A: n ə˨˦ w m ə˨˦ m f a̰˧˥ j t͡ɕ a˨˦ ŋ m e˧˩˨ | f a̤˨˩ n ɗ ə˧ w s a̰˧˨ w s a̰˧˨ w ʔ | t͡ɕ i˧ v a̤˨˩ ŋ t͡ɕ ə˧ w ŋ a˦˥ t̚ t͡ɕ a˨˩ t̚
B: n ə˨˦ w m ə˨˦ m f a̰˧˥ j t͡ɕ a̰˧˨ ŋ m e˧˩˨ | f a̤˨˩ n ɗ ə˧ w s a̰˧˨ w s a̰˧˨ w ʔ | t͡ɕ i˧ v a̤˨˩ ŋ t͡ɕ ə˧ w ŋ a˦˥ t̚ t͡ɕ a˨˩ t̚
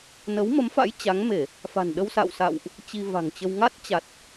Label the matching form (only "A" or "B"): A